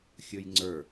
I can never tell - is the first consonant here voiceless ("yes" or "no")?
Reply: yes